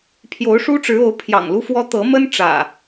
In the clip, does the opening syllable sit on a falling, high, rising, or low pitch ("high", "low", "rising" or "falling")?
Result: rising